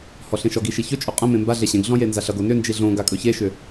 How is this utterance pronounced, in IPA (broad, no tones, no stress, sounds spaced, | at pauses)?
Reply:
h ɔ ɬ ẽ ʃ ɔ ɡ i ʃ i ç ɵ t͡ʃʼ ɵ qʼ ə̃ m ẽ m b a ɮ e ɕ ẽ ɡ ɮ ɔ̃ j e n z a ɬ ʌ ɡ o n ʏ n d͡ʒ i ɮ õ ɡ a kʼ ɵ ç e ʃ ʏ